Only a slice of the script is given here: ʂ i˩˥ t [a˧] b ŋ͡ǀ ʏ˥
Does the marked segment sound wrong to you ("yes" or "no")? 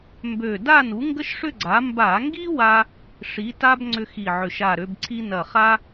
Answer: yes